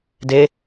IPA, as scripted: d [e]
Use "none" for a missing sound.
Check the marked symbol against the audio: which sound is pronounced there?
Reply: e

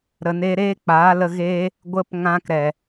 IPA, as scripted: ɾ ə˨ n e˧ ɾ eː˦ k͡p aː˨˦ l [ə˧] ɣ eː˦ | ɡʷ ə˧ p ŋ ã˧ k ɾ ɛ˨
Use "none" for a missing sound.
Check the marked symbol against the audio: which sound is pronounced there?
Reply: ə˧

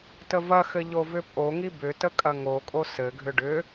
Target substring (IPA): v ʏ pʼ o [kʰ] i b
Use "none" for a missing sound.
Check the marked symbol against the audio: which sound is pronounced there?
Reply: ŋ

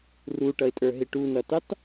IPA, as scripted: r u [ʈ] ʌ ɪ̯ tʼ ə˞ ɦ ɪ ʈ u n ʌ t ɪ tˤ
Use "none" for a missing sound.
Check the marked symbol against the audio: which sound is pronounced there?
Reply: ʈ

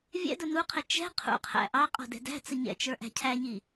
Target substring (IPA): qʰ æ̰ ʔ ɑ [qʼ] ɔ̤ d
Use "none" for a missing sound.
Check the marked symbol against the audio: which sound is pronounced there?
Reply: qʼ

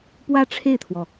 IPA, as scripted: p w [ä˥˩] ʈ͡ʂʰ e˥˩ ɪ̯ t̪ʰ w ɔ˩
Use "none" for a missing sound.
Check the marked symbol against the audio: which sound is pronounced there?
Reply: ä˥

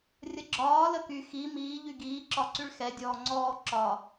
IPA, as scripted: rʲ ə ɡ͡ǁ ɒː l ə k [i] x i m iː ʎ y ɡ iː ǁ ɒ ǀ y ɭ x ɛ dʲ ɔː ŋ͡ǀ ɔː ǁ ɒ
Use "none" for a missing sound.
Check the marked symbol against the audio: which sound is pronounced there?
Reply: y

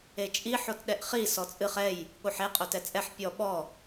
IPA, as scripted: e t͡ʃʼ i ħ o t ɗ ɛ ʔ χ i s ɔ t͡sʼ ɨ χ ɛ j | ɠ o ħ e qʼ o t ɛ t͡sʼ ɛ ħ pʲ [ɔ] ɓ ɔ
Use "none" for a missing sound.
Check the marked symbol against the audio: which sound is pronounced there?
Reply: ɔ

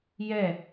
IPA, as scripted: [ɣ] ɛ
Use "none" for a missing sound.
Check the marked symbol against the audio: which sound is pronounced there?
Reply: j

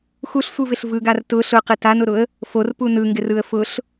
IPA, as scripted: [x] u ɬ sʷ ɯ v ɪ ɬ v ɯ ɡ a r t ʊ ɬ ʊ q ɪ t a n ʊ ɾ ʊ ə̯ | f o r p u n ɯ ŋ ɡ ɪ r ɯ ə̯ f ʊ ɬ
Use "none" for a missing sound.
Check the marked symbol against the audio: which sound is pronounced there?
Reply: x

